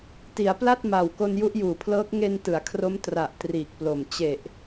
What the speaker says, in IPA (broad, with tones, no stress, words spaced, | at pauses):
ti˩˦a̯pla˥˩t̚ma˨˩w ko˧nju˦˥ʔjuː˨˩pʰlɤː˦˥k̚ ŋe˧n tɯ˩˦a̯kʰro˦˥m tra˨˩ʔ triː˨˩k̚plo˨˩m t͡ɕe˨˩ʔ